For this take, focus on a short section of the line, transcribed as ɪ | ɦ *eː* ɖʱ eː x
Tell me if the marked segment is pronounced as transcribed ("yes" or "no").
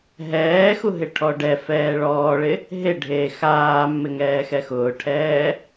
no